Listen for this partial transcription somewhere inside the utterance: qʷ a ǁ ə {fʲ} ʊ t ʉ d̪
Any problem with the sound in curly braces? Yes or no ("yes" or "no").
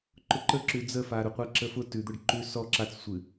yes